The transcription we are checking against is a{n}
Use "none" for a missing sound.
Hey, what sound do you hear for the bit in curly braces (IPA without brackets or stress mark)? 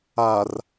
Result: r